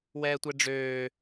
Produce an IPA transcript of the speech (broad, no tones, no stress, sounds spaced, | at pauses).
w ɛː tʷ ɛ ɖ͡ʐ øː